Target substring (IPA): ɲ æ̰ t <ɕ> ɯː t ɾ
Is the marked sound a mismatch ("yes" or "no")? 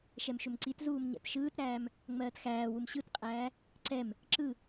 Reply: yes